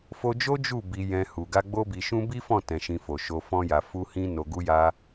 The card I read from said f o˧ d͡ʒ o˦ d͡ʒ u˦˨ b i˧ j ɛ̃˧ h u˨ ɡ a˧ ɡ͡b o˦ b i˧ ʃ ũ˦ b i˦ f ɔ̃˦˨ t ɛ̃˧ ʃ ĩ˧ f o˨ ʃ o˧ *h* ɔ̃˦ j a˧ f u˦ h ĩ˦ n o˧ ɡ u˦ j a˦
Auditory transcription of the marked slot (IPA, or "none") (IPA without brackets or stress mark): f